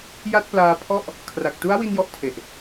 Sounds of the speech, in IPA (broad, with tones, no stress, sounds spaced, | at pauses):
j a˥˩ t̚ p l aː˦˥ pʰ ɔ˥˩ ʔ | kʰ r a˨˩ k̚ t u˦˥ a̯ w i˧ n j ɔ˦˥ ʔ tʰ e˨˩ ʔ